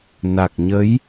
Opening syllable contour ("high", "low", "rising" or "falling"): low